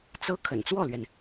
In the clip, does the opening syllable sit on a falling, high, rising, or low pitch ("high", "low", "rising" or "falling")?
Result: high